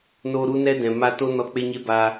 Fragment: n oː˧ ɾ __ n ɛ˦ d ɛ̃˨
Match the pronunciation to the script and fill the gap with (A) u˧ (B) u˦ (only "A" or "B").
B